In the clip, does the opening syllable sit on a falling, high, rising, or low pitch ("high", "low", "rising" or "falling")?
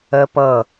high